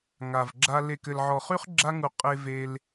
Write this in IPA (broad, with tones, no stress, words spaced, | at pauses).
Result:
ŋa˨vɡ͡ǁa˧ le˨k ɘ˨lʕɔ˨χy˦χ ɡ͡ǁa˧ŋu˨ qʼe˧ve˧l